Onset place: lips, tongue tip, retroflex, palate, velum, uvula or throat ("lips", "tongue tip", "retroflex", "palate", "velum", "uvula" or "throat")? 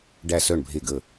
retroflex